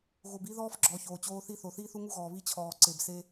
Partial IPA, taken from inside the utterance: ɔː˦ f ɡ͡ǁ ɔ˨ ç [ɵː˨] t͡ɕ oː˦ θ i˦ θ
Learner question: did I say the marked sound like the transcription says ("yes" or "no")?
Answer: no